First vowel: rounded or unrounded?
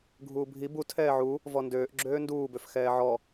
rounded